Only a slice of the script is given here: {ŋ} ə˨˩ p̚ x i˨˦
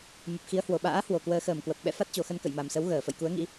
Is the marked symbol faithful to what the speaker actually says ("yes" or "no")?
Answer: no